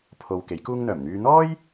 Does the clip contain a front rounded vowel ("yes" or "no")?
yes